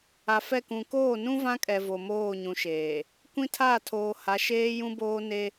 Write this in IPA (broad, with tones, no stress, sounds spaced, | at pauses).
a˨ f ɛ˦˨ k ũ˨ k oː˦˨ n ũ˦ v ã˦ kʼ ɛ˨ v o˨ m oː˦˨ ɲ ũ˨ ʃ eː˨ | kʷ ĩ˦ tʰ a˦˨ tʰ oː˨ h a˨˦ ʃ eː˦ j ũ˦ b oː˦ n e˦